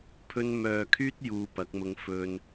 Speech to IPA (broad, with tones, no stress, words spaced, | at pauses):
pʰɵ˧nmœː˨kʰyː˥t̚ juː˧pɐ˨˥k̚mʊ˧ŋ fɵ˧n